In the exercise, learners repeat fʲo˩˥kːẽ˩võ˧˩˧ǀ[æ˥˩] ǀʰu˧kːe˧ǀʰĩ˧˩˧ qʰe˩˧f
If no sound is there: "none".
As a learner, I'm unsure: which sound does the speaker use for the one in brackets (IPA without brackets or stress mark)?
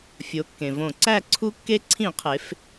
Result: æ˥˩